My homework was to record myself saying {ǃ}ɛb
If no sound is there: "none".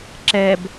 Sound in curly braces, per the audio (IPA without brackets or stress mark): ǁ